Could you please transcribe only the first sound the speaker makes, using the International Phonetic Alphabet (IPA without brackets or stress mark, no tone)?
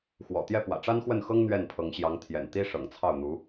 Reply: x